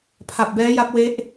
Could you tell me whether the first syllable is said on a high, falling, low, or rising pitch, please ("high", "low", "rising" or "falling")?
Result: low